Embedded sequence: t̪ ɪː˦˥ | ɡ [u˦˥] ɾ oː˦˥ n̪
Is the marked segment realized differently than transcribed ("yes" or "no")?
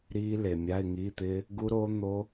no